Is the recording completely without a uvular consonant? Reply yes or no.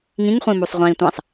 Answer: no